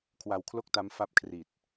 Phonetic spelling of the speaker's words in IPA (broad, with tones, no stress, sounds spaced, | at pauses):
kʰ w a˧ w kʰ l o˥˩ k̚ t a˦˥ m f a˦˥ p̚ kʰ r i˨˩ t̚